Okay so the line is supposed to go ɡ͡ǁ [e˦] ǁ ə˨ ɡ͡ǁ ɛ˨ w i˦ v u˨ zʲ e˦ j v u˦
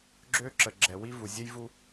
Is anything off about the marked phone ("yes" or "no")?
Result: yes